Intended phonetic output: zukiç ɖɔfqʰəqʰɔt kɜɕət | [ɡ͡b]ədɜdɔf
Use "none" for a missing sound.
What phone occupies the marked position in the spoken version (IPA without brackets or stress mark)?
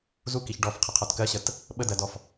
ɓ